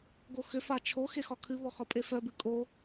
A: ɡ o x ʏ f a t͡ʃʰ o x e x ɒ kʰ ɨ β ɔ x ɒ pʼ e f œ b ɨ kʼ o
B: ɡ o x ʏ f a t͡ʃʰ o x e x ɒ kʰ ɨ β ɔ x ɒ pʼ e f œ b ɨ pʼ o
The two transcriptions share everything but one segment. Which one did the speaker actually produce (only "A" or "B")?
A